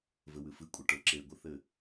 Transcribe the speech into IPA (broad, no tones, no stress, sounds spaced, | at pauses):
v ɘ w ɨ f ɨ kʷʼ ɘ ʈ ə˞ ǁ e ɡʷ ɘ θ ɘ